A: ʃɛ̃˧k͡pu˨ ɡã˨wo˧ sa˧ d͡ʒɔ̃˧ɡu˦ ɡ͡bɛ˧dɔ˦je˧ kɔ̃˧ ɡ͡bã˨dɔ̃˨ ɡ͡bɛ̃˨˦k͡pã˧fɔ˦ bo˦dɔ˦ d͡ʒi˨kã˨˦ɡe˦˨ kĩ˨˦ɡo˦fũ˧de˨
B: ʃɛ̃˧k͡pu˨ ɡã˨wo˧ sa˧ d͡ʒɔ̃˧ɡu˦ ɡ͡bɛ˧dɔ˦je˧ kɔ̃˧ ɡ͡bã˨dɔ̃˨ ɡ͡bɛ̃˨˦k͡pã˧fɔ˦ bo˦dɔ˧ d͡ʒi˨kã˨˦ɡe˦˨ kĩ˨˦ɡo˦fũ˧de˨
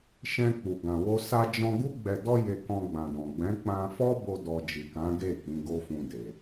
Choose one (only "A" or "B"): B